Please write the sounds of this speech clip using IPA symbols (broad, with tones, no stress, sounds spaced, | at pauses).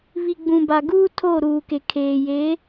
β i˨ ɡ͡b ũ˨ b a˨ ɡ uː˦ tʰ o˦˨ ɾ uː˨ k e˨ kʰ eː˨ j e˨˦